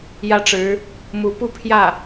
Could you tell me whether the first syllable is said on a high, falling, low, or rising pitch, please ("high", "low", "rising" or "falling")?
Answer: falling